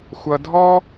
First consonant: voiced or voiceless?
voiceless